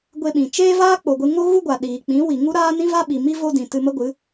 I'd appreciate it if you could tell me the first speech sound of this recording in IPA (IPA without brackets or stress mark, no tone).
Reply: ɡʷ